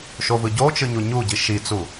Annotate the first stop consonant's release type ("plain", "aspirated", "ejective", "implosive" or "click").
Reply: plain